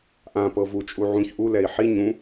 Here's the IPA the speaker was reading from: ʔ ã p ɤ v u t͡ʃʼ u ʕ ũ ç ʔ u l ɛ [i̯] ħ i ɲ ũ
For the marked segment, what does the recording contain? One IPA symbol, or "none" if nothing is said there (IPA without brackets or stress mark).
i̯